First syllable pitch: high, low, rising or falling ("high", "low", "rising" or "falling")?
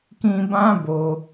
high